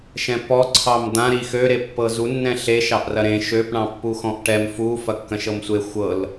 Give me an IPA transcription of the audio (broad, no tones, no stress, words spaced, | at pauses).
ʃɛ̃pɔ ǀʰɑmd̪ã ɾixø ɾepːɤzu nːɛ̃ɬeʃ ɑʔrɐɾẽ ʃøp ɳɑ̃pːuxɔ̃ʔʈɛm fu fɐkːɐ̃ʃɤmsʷe xʷɤl